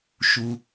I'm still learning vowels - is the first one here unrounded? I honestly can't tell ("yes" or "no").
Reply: no